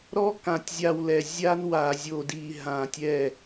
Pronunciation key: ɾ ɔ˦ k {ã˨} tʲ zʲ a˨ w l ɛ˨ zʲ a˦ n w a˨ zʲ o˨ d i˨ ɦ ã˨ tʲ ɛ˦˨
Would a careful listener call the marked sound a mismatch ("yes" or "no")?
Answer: no